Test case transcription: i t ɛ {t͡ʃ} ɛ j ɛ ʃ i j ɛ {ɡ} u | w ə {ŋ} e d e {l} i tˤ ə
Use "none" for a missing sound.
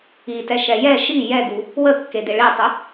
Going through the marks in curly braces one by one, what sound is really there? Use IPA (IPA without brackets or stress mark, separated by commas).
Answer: ʃ, ɡ, kː, ɭ